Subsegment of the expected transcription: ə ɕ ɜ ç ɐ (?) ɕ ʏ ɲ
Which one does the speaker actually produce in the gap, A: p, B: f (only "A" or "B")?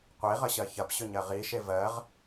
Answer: A